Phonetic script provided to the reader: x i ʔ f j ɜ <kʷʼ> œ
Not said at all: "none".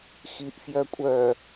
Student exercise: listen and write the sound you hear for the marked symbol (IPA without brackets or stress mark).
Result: kʷʼ